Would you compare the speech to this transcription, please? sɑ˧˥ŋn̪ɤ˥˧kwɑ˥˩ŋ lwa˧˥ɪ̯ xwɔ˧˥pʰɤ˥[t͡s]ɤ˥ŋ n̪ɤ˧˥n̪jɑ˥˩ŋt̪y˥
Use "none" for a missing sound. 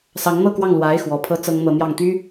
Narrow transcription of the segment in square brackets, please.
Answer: t͡s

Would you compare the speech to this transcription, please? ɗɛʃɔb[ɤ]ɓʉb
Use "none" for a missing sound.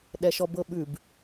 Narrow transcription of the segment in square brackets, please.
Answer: ɤ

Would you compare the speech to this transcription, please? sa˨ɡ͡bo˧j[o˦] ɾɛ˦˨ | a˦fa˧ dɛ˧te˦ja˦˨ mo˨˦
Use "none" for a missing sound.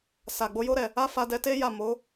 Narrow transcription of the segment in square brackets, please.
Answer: o˦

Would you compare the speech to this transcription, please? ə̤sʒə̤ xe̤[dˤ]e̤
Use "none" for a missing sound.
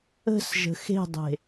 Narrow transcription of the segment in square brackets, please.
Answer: dˤ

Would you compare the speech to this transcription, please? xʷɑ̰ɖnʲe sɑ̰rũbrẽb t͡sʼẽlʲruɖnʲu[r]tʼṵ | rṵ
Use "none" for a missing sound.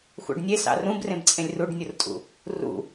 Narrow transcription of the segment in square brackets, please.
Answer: r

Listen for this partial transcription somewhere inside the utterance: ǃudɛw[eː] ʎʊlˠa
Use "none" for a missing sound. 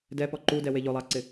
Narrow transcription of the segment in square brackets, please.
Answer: e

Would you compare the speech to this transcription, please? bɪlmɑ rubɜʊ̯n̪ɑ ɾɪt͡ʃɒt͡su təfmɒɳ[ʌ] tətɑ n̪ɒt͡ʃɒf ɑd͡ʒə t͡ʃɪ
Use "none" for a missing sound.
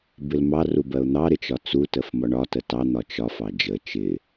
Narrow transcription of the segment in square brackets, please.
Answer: ɒ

